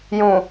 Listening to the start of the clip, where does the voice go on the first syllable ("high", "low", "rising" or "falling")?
low